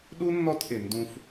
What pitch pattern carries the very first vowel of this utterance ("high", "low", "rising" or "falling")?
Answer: high